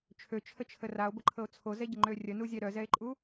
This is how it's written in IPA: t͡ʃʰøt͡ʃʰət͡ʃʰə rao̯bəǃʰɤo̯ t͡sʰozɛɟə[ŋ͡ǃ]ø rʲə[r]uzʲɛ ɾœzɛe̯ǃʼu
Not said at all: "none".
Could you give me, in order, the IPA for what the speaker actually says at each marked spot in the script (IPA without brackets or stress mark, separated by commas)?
ŋ͡ǃ, n